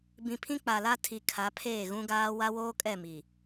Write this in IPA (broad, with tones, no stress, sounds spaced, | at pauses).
b ĩ˨ pʰ ĩ˦ k͡p a˨ l a˦ tʰ i˨ kʰ a˨˦ pʰ eː˦˨ ɣ ũ˦ ɡ aː˦ w a˦ w oː˦ kʼ ɛ˦˨ m i˨